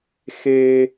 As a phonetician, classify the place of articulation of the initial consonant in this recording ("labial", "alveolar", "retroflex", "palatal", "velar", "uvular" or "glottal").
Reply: velar